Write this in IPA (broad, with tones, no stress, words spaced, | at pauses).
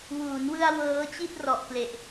wuː˩˦nwɯ˧a̯ wɤː˦˥t͡ɕi˥˩t̚rɔ˨˩ʔkle˨˩ʔ